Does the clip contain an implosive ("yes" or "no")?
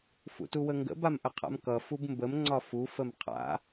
no